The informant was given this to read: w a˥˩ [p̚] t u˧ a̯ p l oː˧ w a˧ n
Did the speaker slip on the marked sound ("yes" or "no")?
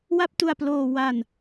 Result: no